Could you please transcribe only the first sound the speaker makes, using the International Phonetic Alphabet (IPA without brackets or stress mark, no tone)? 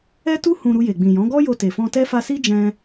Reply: ɛ